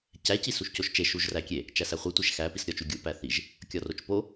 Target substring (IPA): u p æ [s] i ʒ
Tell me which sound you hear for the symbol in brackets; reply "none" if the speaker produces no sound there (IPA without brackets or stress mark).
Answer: θ